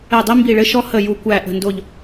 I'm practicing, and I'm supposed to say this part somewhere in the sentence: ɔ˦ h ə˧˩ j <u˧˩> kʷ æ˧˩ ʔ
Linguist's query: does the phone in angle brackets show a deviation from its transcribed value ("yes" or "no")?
no